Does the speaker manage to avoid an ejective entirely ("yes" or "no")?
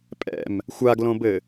no